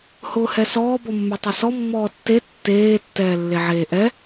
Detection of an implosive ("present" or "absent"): absent